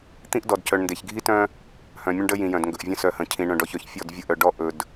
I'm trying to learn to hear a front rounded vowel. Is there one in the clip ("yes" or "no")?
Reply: yes